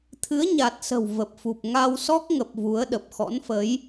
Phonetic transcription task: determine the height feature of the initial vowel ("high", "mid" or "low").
high